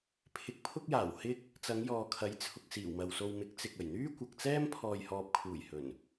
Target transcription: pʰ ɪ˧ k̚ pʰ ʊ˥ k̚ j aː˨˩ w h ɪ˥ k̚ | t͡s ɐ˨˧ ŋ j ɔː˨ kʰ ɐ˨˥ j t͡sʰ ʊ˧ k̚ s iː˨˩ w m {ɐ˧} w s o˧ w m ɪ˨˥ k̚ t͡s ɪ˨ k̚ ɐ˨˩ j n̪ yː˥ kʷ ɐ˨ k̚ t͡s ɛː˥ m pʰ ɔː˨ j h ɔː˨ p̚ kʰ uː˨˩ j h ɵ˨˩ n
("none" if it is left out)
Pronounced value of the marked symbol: ɐ˨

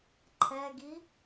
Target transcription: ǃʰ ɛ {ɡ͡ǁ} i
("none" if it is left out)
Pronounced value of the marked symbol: ɡ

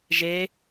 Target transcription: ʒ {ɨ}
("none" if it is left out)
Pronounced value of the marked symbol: e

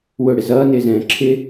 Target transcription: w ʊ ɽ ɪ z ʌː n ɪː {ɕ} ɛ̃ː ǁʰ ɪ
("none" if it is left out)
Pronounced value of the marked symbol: z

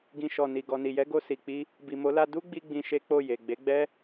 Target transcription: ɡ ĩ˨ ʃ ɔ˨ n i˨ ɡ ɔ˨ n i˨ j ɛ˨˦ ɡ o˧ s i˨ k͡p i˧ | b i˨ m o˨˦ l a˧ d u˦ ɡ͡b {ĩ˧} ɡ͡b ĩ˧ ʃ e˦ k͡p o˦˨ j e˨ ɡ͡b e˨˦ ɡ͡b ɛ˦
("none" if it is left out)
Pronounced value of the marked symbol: i˧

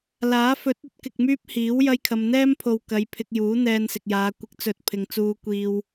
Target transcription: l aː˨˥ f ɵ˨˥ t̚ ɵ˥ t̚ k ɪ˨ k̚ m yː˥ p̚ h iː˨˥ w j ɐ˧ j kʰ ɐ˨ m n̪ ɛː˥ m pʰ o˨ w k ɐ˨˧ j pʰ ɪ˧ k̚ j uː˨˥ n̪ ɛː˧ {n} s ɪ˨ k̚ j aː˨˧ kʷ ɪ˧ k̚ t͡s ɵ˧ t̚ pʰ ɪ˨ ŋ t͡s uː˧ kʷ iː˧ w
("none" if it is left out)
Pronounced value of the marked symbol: n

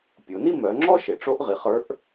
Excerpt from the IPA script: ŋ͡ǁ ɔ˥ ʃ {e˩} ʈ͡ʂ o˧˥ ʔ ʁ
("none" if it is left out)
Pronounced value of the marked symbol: e˩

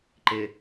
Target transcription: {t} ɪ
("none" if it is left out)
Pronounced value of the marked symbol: ǃ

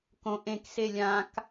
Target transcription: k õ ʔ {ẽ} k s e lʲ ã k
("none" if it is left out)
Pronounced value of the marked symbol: ẽ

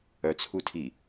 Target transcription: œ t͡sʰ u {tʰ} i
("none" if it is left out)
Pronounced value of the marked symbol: tʰ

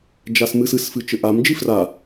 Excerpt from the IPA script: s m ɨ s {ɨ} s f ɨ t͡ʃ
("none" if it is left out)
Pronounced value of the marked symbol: ɨ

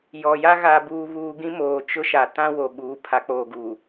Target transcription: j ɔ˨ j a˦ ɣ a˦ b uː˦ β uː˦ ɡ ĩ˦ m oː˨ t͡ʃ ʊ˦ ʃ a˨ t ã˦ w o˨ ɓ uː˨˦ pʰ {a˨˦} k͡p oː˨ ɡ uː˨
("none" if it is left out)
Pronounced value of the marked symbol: a˨˦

